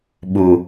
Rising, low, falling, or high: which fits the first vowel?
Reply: low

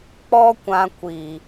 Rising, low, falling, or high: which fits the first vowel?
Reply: high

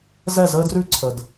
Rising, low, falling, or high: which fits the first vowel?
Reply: falling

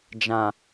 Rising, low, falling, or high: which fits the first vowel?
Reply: low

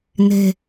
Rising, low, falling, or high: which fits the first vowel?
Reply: low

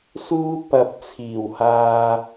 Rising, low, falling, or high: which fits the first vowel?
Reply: high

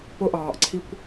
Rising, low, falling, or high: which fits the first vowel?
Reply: high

